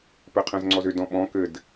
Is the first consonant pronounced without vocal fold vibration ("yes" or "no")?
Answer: yes